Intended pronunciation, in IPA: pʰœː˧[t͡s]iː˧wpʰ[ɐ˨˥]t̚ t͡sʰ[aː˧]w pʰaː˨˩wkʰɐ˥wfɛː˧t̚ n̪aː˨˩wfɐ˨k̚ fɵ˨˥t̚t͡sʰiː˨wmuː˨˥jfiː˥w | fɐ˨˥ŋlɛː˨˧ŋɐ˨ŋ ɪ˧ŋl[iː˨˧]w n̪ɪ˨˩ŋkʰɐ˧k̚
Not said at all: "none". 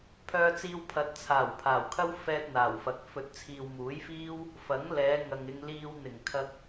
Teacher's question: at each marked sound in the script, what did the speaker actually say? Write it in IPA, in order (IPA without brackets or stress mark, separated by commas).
t͡s, ɐ˨˥, aː˨˩, iː˧